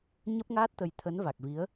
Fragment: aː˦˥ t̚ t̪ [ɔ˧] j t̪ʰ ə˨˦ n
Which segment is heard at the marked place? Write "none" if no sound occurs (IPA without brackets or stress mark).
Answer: ə˧